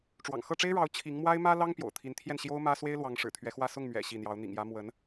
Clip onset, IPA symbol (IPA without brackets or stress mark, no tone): ʈ͡ʂ